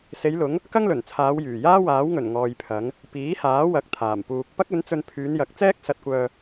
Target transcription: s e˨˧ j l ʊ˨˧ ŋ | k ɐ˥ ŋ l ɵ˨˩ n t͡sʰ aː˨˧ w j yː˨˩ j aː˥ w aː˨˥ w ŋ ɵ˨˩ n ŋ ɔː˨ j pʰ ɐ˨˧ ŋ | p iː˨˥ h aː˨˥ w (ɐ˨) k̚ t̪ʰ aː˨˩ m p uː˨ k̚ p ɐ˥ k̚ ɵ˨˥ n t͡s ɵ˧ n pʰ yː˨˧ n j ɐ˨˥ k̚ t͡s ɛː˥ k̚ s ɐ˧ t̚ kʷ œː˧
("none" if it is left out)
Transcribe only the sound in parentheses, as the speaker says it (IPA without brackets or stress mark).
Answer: ɐ˨˥